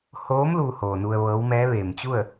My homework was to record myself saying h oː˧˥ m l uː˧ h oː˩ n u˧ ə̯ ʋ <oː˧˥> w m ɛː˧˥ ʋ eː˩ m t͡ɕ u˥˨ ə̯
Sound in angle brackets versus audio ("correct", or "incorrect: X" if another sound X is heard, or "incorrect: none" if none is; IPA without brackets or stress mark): incorrect: ɤː˧˥